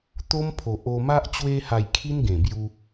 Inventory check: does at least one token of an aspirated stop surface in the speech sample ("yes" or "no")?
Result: yes